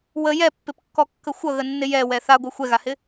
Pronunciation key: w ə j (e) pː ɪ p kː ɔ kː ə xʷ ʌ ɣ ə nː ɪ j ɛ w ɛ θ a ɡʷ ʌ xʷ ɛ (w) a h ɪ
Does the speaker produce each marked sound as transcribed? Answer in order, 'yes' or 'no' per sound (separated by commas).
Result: no, no